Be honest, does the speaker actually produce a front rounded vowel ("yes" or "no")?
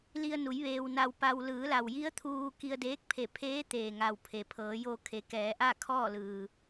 no